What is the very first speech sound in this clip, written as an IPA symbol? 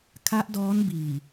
kʰ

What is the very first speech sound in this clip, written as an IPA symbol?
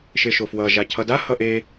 ʃ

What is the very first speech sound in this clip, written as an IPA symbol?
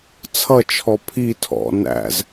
t͡sʰ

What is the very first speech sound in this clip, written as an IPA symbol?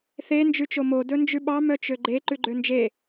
θ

